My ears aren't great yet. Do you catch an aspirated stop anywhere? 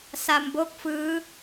no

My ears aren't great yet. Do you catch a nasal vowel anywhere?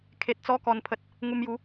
no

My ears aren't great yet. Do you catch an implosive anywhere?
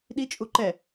yes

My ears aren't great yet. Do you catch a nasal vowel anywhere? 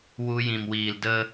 yes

